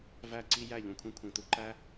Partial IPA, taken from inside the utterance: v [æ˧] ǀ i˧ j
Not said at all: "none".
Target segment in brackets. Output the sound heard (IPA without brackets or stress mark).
æ˦˨